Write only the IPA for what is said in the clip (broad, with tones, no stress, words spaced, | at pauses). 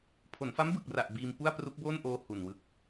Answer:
pʰo˩˦nfa˦˥m bɯ˨˩k̚ ra˨˩ʔ biː˧m pu˥˩a̯pru˦˥k̚boː˥˩nʔoː˧ hu˨˩nwɯ˦˥k̚